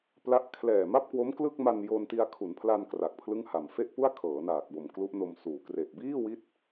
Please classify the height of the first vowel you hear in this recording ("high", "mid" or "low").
low